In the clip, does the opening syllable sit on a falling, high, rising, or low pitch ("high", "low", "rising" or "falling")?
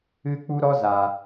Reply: high